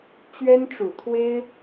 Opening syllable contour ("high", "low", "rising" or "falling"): high